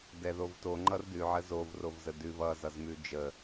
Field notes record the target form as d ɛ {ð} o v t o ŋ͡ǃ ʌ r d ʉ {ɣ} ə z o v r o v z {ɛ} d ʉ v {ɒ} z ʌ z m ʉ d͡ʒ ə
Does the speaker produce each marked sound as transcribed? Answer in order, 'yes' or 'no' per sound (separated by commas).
yes, no, no, no